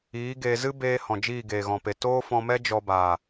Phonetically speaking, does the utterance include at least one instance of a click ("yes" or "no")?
no